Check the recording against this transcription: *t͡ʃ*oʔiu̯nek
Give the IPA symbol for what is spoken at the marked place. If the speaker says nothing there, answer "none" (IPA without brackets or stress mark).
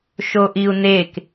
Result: ʃ